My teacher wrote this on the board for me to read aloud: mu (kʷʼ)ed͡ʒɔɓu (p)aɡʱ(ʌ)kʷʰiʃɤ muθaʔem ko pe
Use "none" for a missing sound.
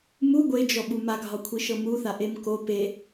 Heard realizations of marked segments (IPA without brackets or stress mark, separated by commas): ɡʷ, m, ɒ